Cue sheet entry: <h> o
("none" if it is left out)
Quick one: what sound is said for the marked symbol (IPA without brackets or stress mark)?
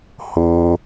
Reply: h